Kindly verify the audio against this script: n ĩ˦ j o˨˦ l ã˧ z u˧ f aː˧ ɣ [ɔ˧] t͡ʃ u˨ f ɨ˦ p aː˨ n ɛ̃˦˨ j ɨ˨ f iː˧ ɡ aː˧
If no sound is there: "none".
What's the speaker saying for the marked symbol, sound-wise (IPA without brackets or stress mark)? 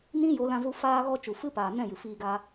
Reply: ɔ˧